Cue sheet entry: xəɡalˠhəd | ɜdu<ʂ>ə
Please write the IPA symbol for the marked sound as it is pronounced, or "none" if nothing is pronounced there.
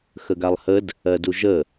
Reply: ʒ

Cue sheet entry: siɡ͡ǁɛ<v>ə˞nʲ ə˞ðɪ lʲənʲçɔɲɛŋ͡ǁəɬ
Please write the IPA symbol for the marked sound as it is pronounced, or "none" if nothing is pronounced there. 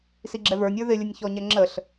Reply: v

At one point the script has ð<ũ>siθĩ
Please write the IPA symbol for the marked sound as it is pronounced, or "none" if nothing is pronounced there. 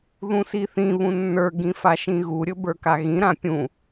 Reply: ũ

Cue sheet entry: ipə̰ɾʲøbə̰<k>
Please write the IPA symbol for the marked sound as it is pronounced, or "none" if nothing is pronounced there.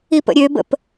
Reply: p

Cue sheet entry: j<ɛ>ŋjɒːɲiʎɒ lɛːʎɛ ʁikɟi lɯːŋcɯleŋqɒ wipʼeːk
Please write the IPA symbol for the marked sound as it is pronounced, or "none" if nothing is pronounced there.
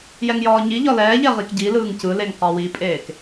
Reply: ɛ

